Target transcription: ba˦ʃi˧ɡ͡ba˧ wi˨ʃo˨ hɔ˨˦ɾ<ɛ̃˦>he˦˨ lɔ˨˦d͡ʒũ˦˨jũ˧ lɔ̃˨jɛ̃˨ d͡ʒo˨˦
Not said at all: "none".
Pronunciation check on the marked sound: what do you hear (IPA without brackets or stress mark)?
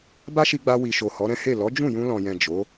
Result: ɛ̃˦